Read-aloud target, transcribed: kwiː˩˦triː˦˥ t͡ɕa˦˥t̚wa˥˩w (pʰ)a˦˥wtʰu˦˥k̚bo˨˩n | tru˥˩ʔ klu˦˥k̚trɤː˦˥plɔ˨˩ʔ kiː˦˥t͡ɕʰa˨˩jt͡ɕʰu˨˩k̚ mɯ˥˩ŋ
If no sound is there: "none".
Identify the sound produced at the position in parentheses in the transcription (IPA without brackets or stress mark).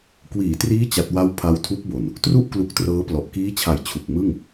pʰ